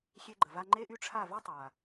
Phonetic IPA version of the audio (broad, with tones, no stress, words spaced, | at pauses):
xʲe˧ɡ͡ǃə˨va˧ ŋ͡ǃe˦ʔy˦ʈ͡ʂʰa˦˨ vɛ˦tˤa˨